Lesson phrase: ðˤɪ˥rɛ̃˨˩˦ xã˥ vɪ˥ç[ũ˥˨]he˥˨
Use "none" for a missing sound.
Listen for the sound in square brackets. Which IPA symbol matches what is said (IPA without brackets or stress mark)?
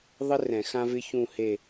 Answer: ũ˥˨